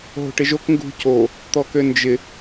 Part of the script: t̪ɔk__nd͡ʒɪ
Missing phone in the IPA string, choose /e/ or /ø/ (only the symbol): ø